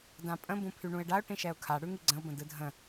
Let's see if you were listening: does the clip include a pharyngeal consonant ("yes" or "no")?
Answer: no